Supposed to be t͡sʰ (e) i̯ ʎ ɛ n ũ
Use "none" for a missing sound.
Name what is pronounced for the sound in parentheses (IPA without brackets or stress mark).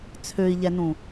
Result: ø